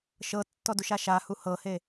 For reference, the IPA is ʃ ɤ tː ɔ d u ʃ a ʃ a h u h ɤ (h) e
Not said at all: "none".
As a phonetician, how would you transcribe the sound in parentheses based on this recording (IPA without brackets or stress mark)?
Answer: h